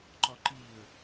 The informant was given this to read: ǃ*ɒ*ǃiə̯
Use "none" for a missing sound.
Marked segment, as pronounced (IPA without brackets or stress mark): ɒ